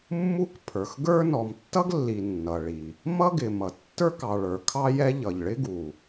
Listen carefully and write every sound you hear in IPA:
mː u˥ k pʰ ə˞˩ x ɡ ə˞˥ n ɔ˩ m tː ʌ˥ ɡ lː i˩ nː ʌ˩ ɭ i˩ | m ʌ˥ ɡ ɪ˩ m ʌ˩ tː ə˞˥ k ɑ˩ ɭ ə˞˩ kʰ ɑ˥ j ɛ˥ ʎ ʌ˩ ʎ ɭ ɪ˥ ɡ u˩

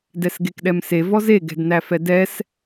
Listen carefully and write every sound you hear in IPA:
d ɛ s ɡ e k ɗ ɛ m s e v ɔ z e ɡ ɛ̤ d n æ f ɛ d ɛ s

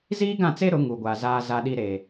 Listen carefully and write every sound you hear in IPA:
z iː˦ ɡ ã˦˨ t͡s e˦ ɾ ʊ˨˦ ŋ u˨ ɡʷ a˨ z aː˦ z a˦ ɗ i˦ ɾ e˨

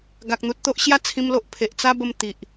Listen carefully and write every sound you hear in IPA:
ɡ a˨ k̚ n̪ u˨ t̚ t̪ o˦ ʔ ɕ j a˥˧ t͡sʰ ĩ˦ m l o˦ ʔ pʰ e˨ ʔ t͡s a˦ b ə˧ m t̪ i˨ ʔ

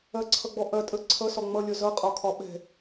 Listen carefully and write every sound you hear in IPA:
ɐ ǀʰ ʌ ɡ͡b ɔ ʔ ɐ tʼ ə ǀʰ ʌ s ɒ ŋ͡m ʌ lʲ ɒ z ʌ qʼ ɒ kʰ ɒ ɓ ɛ̤

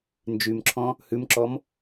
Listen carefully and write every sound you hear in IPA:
n d͡ʒ y m ǁʰ ɔ̃ | h ʉ m ǁ ɔ m

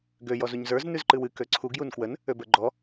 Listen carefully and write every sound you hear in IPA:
ɡ ø j ɔ z u ɲ z ə˞ z n ʉ z ǃ ɨ w ɨ k ø ǀʰ u ɡ j u n k w ə n | ø b ə˞ ɡ͡ǃ ɔ

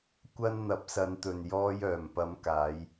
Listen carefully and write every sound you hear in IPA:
kʷ ɐ˧ n n̪ ɐ˨˥ p̚ s ɐ˨˧ n t̪ ɵ˨ n j ɔː˧ j œː˨˩ m p ɐ˨˧ m k aː˨˧ j

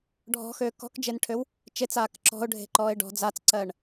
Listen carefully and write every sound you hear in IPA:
ɖʱ ɔ̤ x øː k ɔ̤ k d͡ʒ e n ʈʰ ø w | t͡ʃ e t͡s aː k ǁ ɔ̤ ʊ̯ ɖʱ e̤ ǃ ɔː ɪ̯ ɖ ɔ̤ d͡z a t͡s ǀ ɜː ɳ

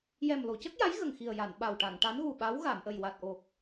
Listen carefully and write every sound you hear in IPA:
j ɛ˨˩ m l o˨˩˨ c ə˦˥ k̚ j a˧˥ j ɣ ə˨˩ ŋ x i˨˩ ə̯ j a˨˩˨ n ɓ a˨˩ w ʈ a˨˩˨ ŋ ʈ a˧˥ n ɣ u˨˩ ɓ a˧˥ w ɣ a˨˩˨ m ʔ ə˨˩ j w a˨˩ t̚ ʔ o˨˩ k̚

